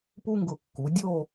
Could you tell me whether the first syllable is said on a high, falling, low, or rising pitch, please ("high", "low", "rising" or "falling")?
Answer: high